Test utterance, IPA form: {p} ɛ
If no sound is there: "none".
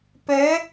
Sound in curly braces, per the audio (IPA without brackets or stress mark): p